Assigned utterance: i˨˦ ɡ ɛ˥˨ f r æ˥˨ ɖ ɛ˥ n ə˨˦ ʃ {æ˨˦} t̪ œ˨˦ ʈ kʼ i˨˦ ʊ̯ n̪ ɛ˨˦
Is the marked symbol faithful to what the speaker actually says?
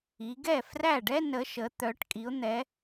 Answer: no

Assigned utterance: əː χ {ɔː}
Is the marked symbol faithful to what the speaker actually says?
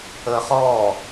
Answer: yes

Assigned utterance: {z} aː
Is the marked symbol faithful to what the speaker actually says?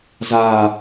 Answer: yes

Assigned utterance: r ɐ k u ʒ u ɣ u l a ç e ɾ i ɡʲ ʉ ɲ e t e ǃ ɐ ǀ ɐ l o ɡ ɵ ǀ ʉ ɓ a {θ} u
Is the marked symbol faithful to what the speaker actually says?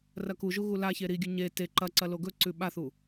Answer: yes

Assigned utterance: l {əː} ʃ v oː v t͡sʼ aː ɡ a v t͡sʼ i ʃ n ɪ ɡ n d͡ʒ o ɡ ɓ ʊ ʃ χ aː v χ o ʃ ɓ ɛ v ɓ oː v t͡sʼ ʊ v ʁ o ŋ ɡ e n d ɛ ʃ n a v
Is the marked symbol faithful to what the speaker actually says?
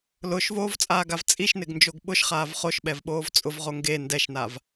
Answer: no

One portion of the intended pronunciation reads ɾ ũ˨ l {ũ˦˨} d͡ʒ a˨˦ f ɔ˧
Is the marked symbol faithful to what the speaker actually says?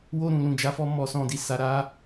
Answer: no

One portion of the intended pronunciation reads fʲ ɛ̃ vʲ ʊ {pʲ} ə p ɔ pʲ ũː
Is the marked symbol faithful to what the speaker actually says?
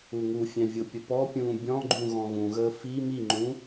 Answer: yes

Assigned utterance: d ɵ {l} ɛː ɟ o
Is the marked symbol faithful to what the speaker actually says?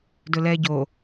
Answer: yes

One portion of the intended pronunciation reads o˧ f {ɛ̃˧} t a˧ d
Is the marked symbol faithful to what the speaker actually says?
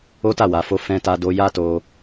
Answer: yes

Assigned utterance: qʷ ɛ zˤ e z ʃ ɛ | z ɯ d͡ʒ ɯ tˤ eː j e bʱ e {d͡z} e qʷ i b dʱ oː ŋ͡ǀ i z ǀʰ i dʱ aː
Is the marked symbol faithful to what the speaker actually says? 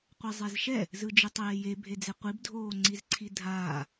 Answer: yes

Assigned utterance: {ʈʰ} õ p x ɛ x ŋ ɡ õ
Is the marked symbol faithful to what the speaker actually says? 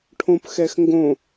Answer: yes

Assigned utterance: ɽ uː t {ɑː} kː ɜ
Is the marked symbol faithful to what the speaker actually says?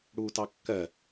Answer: no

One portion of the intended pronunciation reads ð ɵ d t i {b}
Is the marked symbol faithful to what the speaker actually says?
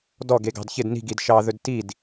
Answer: no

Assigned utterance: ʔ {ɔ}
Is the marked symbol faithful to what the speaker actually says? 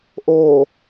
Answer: no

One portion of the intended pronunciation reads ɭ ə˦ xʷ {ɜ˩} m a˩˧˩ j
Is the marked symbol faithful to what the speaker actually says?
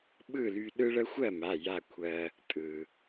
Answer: no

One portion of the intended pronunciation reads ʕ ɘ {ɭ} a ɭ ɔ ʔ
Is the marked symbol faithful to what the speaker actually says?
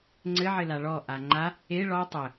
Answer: no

